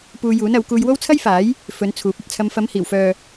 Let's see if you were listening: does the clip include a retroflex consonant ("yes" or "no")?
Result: no